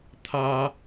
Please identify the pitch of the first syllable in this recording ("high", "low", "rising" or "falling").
high